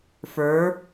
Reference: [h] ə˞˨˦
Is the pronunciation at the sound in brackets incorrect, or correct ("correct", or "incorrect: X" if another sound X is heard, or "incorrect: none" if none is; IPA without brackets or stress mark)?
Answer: incorrect: f